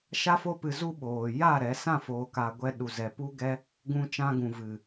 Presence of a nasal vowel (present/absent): present